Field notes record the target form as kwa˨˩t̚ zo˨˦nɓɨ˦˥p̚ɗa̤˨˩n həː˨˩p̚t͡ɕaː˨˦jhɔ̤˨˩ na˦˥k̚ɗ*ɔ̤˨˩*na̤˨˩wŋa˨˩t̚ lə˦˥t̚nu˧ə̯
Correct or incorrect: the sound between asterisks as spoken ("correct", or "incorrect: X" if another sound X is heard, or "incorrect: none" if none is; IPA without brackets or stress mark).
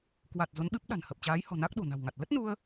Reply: incorrect: o̤˨˩